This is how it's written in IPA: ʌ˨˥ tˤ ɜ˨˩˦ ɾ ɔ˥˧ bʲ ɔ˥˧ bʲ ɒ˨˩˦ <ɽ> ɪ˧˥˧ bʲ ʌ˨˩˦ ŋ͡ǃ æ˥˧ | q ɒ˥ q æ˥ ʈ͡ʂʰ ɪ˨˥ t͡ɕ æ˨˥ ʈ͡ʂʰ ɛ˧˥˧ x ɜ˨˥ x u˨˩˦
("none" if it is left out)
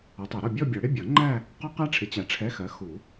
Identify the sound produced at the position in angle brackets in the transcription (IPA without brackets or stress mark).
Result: ɽ